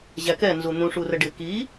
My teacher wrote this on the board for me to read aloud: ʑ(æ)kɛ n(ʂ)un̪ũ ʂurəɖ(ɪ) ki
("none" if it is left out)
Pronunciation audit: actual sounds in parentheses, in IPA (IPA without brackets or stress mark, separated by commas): æ, z, ɪ